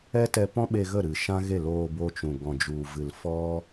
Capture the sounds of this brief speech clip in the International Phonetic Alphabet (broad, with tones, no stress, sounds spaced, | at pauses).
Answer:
ɛ˦ t ɛ˧ p ɔ̃˦ ɓ e˧ ɣ ə˦˨ ɾ ɨ˨ ʃ ã˦ ɣ e˦˨ l oː˧ b o˧ t͡ʃ ũ˨ ɡ ɔ̃˨ d͡ʒ u˨ v ɨ˨ l f ɔ˦